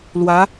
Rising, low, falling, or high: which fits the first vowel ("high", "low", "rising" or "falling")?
rising